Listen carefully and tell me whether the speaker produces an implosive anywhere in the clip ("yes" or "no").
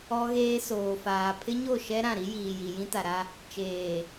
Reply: no